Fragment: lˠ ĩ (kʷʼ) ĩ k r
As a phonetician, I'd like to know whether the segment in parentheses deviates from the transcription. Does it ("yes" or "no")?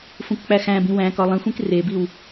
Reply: yes